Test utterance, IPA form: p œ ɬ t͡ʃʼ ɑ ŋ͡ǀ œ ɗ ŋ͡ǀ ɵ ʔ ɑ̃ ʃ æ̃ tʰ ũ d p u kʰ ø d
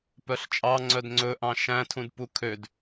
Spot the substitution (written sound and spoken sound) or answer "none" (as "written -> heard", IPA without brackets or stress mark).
ɗ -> d